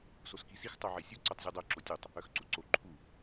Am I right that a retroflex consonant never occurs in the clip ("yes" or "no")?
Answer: yes